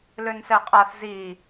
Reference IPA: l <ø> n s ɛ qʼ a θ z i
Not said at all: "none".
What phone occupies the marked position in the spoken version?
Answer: ø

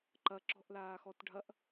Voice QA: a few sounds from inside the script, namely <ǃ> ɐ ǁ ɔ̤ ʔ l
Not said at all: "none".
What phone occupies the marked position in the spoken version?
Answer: ǃ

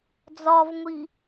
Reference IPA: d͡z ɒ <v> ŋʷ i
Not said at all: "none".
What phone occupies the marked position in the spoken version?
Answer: v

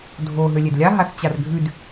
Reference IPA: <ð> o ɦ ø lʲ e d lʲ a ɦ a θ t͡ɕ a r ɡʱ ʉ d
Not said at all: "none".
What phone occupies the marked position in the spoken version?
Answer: dʱ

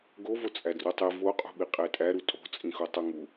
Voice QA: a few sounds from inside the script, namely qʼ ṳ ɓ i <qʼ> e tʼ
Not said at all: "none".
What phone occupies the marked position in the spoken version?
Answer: qʼ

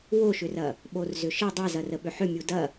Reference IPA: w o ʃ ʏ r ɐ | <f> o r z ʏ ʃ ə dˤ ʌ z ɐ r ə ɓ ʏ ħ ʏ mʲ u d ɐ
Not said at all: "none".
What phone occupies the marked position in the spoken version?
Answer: ɓ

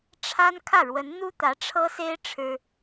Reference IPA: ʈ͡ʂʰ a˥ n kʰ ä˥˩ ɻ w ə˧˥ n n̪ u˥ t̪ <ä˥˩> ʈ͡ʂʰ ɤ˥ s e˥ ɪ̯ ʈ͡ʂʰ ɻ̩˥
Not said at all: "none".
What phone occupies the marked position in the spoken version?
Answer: ä˧˥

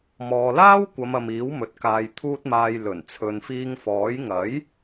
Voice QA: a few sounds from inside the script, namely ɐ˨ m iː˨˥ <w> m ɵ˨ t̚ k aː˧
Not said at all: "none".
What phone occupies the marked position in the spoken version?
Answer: w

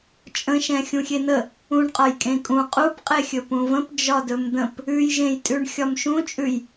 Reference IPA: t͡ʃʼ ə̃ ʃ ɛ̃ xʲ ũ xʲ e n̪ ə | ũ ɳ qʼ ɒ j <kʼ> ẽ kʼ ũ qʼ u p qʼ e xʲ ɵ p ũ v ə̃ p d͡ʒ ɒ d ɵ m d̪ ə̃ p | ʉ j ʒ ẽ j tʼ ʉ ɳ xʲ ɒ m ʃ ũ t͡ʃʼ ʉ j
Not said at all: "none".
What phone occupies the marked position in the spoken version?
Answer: kʼ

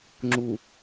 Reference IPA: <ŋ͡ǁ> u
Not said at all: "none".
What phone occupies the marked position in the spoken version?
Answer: ŋ͡ǁ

